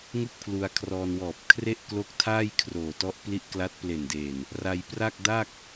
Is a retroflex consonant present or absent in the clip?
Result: absent